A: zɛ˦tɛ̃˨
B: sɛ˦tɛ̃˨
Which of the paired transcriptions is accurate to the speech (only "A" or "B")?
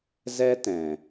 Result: A